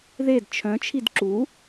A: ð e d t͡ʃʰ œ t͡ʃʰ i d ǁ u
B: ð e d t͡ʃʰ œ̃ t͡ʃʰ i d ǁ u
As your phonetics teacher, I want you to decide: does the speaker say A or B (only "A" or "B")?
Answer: B